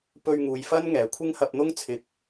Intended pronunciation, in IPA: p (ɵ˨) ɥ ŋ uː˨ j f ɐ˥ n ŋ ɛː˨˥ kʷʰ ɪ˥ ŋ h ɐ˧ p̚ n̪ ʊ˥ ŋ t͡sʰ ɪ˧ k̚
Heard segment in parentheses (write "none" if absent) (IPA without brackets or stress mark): ɵ˧